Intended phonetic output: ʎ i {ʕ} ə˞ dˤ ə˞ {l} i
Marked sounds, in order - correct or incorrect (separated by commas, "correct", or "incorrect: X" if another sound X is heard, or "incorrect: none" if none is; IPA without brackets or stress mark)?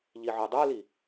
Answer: correct, correct